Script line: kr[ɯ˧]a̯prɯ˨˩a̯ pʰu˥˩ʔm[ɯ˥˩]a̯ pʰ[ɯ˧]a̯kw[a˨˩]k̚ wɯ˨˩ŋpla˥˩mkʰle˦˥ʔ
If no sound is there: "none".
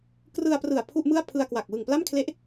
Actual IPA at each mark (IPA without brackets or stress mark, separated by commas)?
ɯ˧, ɯ˥˩, ɯ˧, a˨˩